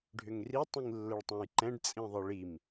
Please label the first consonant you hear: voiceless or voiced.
voiced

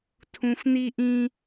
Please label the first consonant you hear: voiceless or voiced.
voiceless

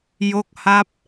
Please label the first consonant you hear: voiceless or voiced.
voiced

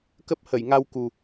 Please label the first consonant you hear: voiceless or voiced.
voiceless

